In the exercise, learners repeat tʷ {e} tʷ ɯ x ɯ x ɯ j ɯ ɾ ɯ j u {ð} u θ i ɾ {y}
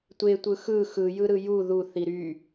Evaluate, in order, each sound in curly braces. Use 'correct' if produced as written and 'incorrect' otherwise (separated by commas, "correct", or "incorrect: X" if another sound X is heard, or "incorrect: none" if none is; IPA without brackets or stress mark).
correct, correct, correct